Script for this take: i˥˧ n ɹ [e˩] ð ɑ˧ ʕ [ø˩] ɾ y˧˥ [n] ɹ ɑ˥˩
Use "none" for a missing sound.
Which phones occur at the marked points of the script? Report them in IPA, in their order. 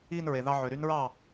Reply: e˩, ø˩, n

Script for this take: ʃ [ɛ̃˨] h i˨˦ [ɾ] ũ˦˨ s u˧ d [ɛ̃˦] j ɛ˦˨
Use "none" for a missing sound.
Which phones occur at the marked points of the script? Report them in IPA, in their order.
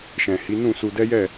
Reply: ɛ̃˨, n, ɛ˦

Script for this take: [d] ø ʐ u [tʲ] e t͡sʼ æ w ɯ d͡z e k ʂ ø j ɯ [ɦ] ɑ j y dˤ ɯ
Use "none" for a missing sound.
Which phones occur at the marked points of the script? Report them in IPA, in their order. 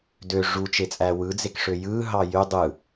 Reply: d, t͡ʃ, ɦ

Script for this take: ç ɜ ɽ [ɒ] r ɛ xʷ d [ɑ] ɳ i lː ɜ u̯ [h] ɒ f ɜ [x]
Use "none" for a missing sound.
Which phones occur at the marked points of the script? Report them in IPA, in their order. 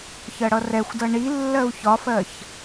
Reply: ʌ, ʌ, ç, ç

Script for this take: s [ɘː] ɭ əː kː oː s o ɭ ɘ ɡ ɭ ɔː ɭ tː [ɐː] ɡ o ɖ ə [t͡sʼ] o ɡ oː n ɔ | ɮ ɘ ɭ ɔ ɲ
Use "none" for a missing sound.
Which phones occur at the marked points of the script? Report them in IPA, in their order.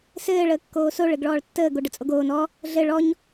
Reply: ɘː, əː, t͡sʼ

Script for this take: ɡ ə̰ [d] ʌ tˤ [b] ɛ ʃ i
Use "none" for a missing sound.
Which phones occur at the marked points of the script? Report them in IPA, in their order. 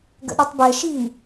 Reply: ɗ, b

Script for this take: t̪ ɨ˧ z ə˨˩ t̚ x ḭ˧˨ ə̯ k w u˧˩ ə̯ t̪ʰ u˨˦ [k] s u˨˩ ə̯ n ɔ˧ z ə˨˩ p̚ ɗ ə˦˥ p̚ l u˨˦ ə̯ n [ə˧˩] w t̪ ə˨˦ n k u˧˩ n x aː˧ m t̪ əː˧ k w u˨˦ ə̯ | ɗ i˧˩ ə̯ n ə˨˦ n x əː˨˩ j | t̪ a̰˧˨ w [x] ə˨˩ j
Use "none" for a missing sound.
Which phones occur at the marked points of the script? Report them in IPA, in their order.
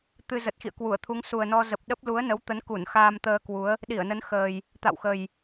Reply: ŋ, ə˨˦, x

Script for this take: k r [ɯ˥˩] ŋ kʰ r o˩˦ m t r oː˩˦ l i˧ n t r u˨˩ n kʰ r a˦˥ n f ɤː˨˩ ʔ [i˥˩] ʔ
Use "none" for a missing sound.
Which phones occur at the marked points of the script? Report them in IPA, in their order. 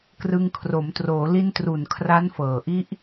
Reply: ɯ˧, i˦˥

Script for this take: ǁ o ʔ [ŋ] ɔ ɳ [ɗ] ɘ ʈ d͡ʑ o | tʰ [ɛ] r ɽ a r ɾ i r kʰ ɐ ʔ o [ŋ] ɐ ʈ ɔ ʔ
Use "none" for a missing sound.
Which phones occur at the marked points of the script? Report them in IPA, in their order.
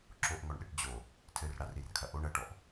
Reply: ŋ, ɗ, ɘ, ɳ

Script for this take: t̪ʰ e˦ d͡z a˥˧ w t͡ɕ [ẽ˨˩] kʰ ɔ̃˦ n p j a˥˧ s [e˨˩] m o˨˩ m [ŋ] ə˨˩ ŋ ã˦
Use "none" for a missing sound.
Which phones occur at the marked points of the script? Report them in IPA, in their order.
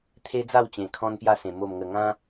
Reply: ẽ˨˩, ẽ˨˩, ŋ

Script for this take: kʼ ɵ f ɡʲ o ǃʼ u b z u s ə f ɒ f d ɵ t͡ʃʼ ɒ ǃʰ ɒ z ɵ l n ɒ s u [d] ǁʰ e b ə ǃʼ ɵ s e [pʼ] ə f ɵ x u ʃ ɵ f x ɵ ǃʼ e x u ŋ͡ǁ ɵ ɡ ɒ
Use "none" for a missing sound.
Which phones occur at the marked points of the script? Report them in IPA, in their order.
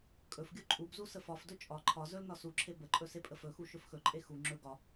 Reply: none, pʼ

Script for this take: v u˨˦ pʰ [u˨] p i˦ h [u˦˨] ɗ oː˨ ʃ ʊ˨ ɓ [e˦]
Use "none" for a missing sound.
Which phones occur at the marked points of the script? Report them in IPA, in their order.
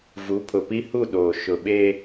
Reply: ʊ˨, u˦˨, e˦

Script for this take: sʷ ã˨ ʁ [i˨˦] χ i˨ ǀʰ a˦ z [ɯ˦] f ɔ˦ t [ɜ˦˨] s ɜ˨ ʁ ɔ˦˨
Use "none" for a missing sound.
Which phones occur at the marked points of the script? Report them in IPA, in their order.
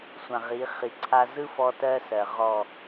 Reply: i˨˦, ɯ˦, ɜ˦

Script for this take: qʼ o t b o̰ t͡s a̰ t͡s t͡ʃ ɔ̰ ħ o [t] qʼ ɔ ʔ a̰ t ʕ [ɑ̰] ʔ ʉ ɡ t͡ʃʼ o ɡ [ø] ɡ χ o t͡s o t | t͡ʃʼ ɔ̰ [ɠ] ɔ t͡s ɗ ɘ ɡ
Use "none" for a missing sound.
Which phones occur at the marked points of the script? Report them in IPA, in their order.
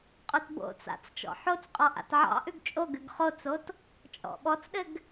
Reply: t͡s, ɑ̰, ʉ, ɓ

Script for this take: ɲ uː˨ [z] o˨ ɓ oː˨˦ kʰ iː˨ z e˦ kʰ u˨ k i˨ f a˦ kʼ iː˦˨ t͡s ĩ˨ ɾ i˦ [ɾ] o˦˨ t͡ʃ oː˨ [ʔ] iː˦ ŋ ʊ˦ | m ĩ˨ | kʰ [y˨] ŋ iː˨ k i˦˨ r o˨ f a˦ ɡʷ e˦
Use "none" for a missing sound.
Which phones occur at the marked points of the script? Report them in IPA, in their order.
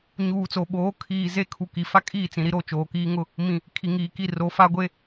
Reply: t͡s, ɾ, k, i˨

